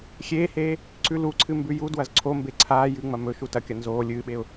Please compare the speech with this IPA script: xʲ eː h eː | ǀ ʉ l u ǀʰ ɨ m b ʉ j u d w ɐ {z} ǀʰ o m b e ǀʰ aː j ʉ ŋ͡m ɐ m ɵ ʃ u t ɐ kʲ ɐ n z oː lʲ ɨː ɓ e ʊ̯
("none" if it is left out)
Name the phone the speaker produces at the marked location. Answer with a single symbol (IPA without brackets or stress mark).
z